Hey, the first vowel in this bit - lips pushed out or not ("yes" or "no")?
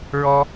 yes